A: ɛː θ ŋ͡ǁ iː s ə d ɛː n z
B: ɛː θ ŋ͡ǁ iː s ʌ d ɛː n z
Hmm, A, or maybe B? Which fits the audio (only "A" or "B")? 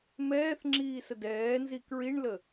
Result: A